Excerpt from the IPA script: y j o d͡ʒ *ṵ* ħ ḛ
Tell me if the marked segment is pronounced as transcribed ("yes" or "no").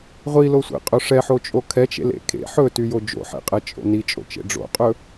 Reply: no